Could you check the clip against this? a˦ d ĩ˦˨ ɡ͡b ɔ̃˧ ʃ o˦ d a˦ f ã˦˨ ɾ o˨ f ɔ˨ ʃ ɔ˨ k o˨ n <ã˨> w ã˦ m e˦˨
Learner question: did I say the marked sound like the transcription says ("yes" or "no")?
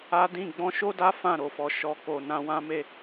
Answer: no